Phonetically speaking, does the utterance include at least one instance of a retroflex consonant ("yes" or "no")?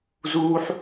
no